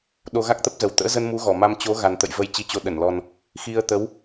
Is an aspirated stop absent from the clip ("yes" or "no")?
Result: yes